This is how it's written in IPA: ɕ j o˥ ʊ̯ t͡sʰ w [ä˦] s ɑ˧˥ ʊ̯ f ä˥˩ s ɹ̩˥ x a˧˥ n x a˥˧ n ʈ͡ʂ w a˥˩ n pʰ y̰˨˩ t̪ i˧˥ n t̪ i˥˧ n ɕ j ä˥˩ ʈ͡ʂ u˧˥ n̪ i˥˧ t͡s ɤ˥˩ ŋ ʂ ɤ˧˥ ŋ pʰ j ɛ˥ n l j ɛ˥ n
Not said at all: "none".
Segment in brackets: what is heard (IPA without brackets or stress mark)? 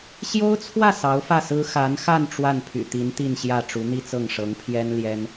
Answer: ä˥˩